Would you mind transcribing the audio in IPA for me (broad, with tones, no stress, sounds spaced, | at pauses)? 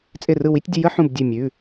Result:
t͡sʼ ɪ˧˩ r ɯ˧˩ w i˨˦ tʲ dʲ ʊ˨˦ j ə˨˦ ħ ũ˧˩ b dʲ ʉ˧˩ mʲ ʉ˩˧˩